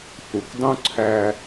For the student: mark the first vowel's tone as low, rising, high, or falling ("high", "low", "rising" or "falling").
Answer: low